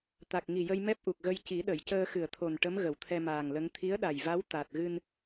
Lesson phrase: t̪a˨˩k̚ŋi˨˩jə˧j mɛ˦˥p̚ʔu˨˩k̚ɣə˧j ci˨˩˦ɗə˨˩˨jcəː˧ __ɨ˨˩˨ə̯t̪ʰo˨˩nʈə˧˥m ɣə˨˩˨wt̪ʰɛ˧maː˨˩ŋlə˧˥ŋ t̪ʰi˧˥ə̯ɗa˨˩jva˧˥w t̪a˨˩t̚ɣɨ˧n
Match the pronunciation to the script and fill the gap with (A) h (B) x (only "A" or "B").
B